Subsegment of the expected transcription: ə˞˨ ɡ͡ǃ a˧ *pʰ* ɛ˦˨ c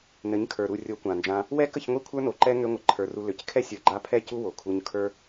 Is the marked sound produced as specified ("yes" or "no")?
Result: yes